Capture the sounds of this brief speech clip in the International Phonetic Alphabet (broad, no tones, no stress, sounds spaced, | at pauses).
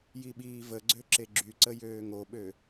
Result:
j i ɓ iː v ə ɡ͡ǀ ø ǁ e ɡ͡ǁ y ǀ ə j øː ŋ o ɓ ø